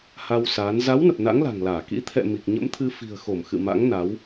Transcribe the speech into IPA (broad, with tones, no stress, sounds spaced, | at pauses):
h a˧ w s aː˨˦ n z a˨˦ w n ə˨˩ p̚ n a̰˧˥ ŋ l a̤˨˩ ŋ l aː˧˩ k ḭ˧˥ t̪ʰ ɛ̰˧˨ m i˨˩ k̚ ɲ ə̰˧˥ m t̪ʰ ɨ˧ f i̤˨˩ ə̯ x o˧˩ m x ɨ̰˧˨ m a̰˧˥ ŋ n a˨˦ w